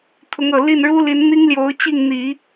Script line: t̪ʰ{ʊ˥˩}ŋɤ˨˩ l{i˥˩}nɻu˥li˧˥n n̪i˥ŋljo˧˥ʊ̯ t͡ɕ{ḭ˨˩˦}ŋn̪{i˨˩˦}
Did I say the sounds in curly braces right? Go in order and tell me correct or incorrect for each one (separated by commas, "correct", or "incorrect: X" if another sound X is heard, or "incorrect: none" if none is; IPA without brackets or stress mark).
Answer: incorrect: ʊ˧˥, correct, incorrect: i˥˩, correct